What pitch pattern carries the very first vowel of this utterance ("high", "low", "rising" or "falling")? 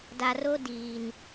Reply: low